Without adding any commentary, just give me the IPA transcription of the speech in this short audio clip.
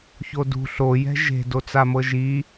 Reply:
ç o d ṳ ɬ o j ɛ̤ ʒ e̤ d o t͡s a m ɤ ʒ i

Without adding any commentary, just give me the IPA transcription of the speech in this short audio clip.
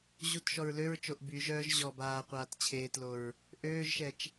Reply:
ʑ u t ʃ ɔ ɹ l ø ɹ t͡ʃ o ʔ b y ʒ œː ʒ ʑ ɔ b aː qʷ aː t t͡ɕʰ eː t l o ɹ | ʔ øː ʒ ʃ ɛ t͡ʃ

